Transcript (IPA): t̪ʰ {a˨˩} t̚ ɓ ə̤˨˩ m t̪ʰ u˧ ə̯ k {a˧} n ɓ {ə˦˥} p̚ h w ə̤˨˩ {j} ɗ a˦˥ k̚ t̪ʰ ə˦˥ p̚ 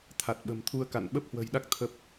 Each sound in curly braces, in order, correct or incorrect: correct, incorrect: a̰˧˨, correct, correct

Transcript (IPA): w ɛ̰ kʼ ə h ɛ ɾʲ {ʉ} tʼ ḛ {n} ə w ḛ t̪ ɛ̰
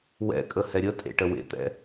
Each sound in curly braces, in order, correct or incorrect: incorrect: ə, incorrect: ʈ

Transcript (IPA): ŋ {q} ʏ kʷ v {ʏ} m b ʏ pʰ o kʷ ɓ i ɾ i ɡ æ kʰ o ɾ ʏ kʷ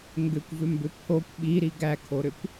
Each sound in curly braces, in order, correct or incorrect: incorrect: ɡ, correct

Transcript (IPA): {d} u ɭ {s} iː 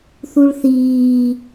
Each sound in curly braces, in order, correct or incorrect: incorrect: θ, incorrect: θ

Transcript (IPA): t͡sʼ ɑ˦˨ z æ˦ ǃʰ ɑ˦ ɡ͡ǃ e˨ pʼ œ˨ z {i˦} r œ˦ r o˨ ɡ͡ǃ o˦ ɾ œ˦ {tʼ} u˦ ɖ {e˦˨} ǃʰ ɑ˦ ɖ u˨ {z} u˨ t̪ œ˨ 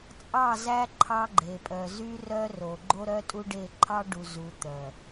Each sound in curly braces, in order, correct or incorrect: incorrect: y˦, correct, correct, correct

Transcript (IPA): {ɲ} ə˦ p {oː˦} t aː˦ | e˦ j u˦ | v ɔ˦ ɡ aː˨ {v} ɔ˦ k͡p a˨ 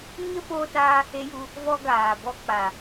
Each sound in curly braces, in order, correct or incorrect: correct, correct, incorrect: b

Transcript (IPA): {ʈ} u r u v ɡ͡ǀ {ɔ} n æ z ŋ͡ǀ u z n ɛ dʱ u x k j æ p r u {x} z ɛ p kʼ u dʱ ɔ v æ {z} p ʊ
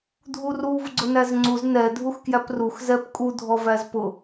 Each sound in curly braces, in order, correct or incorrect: incorrect: dʱ, incorrect: ʊ, correct, correct

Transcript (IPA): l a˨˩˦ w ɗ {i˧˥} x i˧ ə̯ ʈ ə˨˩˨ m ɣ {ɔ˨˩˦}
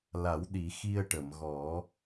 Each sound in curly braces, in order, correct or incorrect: incorrect: i˨˩˦, correct

